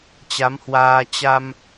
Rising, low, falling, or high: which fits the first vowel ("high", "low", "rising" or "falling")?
rising